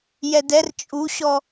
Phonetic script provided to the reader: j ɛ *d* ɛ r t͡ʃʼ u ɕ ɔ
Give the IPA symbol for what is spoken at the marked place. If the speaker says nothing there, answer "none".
d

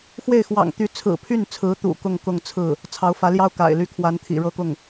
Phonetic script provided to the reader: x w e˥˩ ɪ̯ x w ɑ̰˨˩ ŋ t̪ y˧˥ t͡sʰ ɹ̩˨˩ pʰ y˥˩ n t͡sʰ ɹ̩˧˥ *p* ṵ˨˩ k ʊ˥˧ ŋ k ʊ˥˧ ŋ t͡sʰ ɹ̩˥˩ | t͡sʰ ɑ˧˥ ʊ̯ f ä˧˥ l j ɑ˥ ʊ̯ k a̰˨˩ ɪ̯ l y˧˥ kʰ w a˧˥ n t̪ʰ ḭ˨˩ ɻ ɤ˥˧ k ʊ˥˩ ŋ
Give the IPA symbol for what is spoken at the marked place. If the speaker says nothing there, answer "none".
t̪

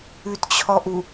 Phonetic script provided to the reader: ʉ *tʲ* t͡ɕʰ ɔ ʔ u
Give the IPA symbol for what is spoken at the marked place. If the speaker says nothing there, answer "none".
t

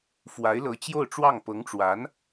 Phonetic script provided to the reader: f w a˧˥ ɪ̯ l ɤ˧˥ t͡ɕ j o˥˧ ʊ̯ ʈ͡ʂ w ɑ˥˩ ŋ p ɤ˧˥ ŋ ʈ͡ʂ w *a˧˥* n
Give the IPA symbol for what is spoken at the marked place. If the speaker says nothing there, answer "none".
a˧˥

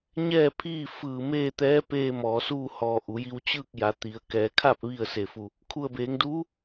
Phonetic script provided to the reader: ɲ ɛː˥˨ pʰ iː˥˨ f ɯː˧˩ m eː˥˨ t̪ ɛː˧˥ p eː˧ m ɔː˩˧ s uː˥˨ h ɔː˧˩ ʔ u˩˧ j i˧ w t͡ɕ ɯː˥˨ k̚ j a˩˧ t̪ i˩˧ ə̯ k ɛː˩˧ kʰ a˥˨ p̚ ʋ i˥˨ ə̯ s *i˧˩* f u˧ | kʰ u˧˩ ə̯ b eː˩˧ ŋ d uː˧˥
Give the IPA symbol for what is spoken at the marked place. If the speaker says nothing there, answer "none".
e˧˩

